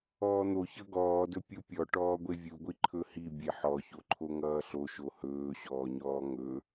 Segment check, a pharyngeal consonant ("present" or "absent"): present